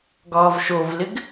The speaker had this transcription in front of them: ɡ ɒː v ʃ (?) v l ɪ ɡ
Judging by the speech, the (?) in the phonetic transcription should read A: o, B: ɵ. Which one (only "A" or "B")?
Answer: A